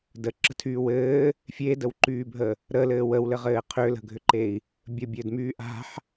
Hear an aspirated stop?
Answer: yes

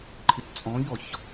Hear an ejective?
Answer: yes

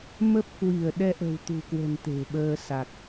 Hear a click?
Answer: no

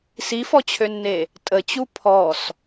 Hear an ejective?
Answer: yes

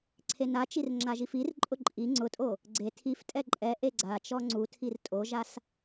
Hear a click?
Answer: yes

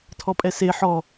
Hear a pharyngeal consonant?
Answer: yes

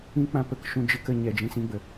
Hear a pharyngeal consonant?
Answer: no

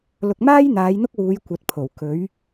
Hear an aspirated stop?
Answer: yes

